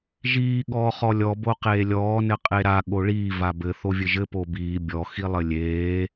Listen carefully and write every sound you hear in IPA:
ʒiː ɠɔːχɔlʲɔ boqeːlʲɔː nɘqʼeɾa ɠoɭiː vabɘ θovʲɘʒɘ pobiː bʲɔ xilˠɘlʲeː

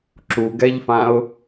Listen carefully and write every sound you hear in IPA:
ǁuɡɛʎfãʊ̯

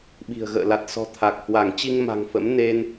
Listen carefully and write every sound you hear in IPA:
ɓi̤˨˩ə̯ɣə̰ː˧˨ la˨˩t̚sɔ̤˨˩ t̪ʰa˨˩k̚hwa˧˩ŋ t͡ɕi˧ŋ ma̤˨˩ŋfə̰˧˥m ne˧n

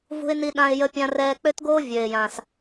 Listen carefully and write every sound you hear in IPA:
vṳ˧ɪ̯ ni˧ɗã˧ɪ̯jə˧ pʲã˧rɛː˧ k͡pø˥tɡoː˥ vʲø˩ɪ̯jã˩s

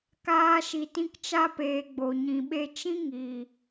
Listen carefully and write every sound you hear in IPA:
kaː˧ ʃi˨tĩ˧kt͡ʃa˧peː˨ ɡ͡bo˨ɲĩ˨ɓe˧ t͡ʃĩ˦ ŋi˨

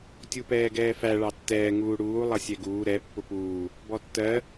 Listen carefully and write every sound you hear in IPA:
tʲupɛːɡɛːfæ ɭɑtːɛː ŋuːɽuː lˠʌsʲɛɡuː ɾɛ pːʊpuː | bɔtːɜ

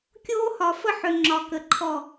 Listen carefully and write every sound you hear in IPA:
kʲoː˦hɒ˨ fə˦ħʏ˨ ŋ͡ǁɒ˨kə˨ǃʰɔ˦˨

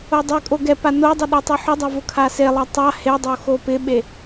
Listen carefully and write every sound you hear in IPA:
odˤɪkʼo ɡɛ panodˤʊ ɗotˤeħʊdˤa vʊkʰaselˠa tˤa hedˤo xopɪɓe

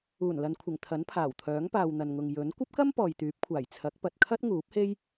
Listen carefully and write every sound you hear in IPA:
uː˨˩nlɐ˨nkʷʰɪ˨˩ŋ t̪ʰɐ˨˥npʰaː˨˩wt̪ʰœː˨˥ŋpaː˨w n̪ɐ˨nŋʊ˨ŋ jɵ˨˥n kʷɐ˥p̚kɐ˥m pɔː˨jt̪yː˨˥p̚kʷʰaː˨˩j t͡sʰɐ˨˥k̚pɐ˨t̚kʰɐ˥t̚ ŋuː˨˥p̚he˥j

